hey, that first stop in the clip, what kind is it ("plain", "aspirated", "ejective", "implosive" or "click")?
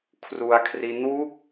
aspirated